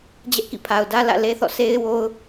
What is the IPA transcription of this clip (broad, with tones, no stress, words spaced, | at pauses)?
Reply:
d͡ʑɛ˦ʔkḭ˦˨pʰa˨ʊ̯dä˦ lä̰˦˨le˦θɔ̰˦˨ sʰe˦ɪ̯ wo˦ʊ̯